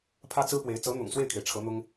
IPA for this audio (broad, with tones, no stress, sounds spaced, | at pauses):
pʰ ä˥ t͡s ɹ̩˥ p w e˧˥ ɪ̯ t͡s ɤ˧˥ n̪ ʊ̰˨˩ ŋ s w e˥˩ ɪ̯ kʰ e˩ ɪ̯ ʈ͡ʂʰ ɤ˧˥ n̪ ʊ˥ ŋ